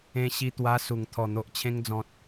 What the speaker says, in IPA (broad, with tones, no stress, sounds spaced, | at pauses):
ẽ˧ ɕ i˧ t̪ w a˧ s u˨˩ ŋ t̪ʰ ɔ˨˩ n̪ o˨ ʔ t͡ɕʰ ẽ˧ ŋ d͡z ɔ̃˨ t̚